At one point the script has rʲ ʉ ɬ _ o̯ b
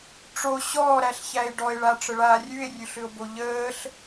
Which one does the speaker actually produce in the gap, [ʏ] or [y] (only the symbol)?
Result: ʏ